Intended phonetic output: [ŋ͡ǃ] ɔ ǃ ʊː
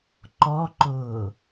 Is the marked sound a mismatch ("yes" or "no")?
yes